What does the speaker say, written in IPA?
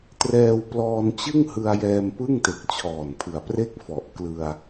t r ɛː˧ w p l ɔː˧ n t͡ɕ ɯ˥˩ ŋ h ɯ˧ a̯ j ɛː˧ m p ɯ˥˩ ŋ t e˨˩ k̚ t͡ɕʰ ɔː˨˩ n pʰ ɯ˨˩ a̯ p r e˥˩ k̚ f ɔ˨˩ ʔ k l ɯ˧ a̯

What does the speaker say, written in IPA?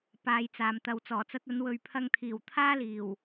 p aː˨˧ j t͡s aː˨ m t̪ ɐ˨ w t͡s ɔː˨˩ t͡s ɐ˧ t̚ ɐ˨˧ n w ɵ˨ ɥ pʰ ɐ˧ ŋ t̪ʰ iː˨˩ w t̪ʰ aː˥ l iː˨˩ w

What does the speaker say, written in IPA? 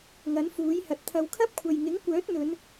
ŋ ɐ˨˥ n f uː˨˥ j h ɐ˨ t̚ t̪ʰ ɐ˨˧ w kʰ ɐ˥ p̚ kʷʰ ɐ˨ j ŋ ɪ˨˥ ŋ kʷ œː˨˥ t̚ n̪ ɵ˨˧ n

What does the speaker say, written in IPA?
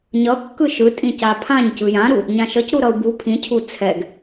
ɲ ʌ kː ɯ ʃ ɯ tʼ ĩ c a pʰ ã ɲ c ɯ j ã ɾ u | ɲ ã ʃ ʌ c ɾ u ɾ ʌ u̯ b u pʰ ĩ cʰ u t͡sʰ ɛ ɡ

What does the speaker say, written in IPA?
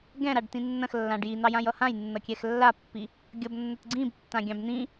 ɡ ɛ̃ ɾ a ɖ t ĩ nː ɐ̃ x lː ã ɖ j i n̪ ɑ j ã j ʌ h ã j nː ʌ kʲ ɛ x lː a pː i | ɡʲ ʌ b nː ɐ t ɡ͡ǀ ĩ b tː ã ɡʲ ɑ̃ b n̪ ĩ

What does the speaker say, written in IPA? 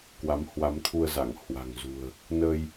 k w a˨˦ m h w a˨˦ m t̪ʰ u˧ ə̯ z a˧˩ ŋ h w a̤˨˩ ŋ z ṳ˨˩ ə̯ | n ə˧ j

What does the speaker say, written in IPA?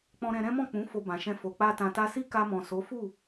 k͡p ɔ̃˧ ɾ ɛ̃˧ ɾ ɛ̃˦ m ɔ̃˦˨ k͡p ũ˨˦ f o˧ b ã˨ ʃ ɛ̃˧ f o˨ k͡p a˧ t ã˨ t a˧ s i˦ k a˧ m ɔ̃˨ s o˨˦ f u˦˨

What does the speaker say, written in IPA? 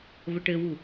v ə ʈ ɘ w u

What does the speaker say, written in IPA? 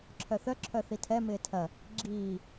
ǁʰ œ θ œ ǁʰ œ θ i tʰ ɛ m ɪː tʰ ɐ | ɡ͡ǁ iː

